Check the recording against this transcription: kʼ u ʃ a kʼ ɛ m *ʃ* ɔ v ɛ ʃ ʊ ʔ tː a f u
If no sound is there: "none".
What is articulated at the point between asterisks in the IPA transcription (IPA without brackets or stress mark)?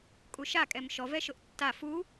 ʃ